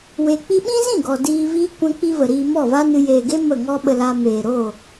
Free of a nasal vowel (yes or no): no